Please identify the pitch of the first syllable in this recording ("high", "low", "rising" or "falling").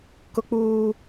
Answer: high